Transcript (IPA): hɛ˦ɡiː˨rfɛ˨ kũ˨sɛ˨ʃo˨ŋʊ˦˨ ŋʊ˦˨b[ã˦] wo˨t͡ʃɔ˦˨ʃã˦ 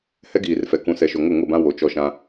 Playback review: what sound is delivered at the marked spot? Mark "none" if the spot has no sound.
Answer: ã˦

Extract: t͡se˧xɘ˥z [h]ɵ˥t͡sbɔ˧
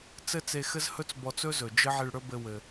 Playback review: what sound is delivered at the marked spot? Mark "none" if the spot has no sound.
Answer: h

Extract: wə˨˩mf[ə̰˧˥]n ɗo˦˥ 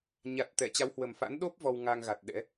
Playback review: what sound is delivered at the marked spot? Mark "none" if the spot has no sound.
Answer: a̰˧˥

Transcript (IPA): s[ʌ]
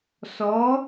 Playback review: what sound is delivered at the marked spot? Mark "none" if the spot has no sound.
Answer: ɔ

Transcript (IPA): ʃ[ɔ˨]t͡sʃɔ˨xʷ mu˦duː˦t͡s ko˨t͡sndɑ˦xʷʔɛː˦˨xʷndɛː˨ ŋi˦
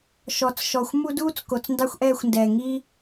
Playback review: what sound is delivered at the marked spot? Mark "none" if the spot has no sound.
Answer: ɔ˨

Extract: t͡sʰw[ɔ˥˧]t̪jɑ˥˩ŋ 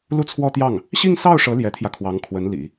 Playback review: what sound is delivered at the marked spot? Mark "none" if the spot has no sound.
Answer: ɔ˥˧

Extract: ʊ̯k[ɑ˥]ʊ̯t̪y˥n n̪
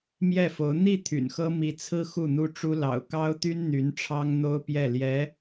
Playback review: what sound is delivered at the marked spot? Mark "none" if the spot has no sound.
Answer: ɑ˥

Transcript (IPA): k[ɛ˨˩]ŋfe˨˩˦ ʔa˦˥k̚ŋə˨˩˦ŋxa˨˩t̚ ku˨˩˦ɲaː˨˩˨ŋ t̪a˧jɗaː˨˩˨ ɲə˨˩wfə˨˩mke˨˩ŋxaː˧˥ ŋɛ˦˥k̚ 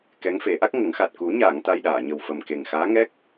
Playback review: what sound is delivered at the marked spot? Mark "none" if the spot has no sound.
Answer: ɛ˧˥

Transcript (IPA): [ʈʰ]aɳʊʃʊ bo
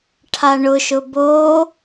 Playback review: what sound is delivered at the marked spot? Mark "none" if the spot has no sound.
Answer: ʈʰ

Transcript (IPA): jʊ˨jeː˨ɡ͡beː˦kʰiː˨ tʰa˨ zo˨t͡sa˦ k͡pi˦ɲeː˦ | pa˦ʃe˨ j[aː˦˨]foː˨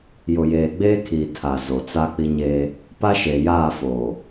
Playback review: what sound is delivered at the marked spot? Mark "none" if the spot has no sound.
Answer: aː˦˨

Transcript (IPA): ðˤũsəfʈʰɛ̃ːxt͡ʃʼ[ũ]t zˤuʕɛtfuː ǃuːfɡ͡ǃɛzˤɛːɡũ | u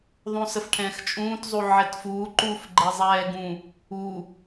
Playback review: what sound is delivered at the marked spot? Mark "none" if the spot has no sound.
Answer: ũː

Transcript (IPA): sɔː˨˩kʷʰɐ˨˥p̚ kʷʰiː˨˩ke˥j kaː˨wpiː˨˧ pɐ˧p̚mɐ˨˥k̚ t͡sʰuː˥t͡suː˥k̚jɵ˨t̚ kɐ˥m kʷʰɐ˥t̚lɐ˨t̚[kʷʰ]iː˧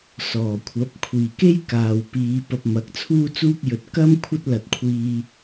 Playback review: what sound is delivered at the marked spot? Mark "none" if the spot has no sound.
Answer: kʷʰ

